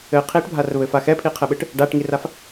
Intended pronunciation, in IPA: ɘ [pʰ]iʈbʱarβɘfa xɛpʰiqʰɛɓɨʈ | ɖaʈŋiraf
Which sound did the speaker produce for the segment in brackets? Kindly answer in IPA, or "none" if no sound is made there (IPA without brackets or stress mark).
qʰ